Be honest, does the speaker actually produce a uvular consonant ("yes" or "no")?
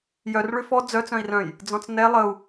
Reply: no